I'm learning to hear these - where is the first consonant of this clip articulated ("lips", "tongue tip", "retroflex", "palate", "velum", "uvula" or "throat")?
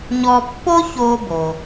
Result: palate